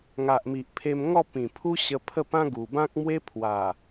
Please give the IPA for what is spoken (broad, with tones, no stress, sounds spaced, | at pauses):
ŋ a˨ ʔ m i˨ ʔ pʰ e˧ m ŋ ɔ˥˧ p ĩ˨˩ pʰ u˦ ɕ ə˧ pʰ ə˥˧ p ã˦ ɡ u˨˩ b ã˦ k̚ m w e˦ pʰ w a˨˩